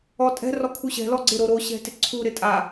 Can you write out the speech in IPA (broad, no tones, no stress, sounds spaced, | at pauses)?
ɔ tʼ ɛ̤ r ɔ kʰ u ɕ ɛ̤ l ɔ ɡ͡ǀ ɪ ɾ o ɾ o ɕ ɛ̤ t ɪ ǀʰ u ɾ ɪ tʼ a